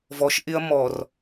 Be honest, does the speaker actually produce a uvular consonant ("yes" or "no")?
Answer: no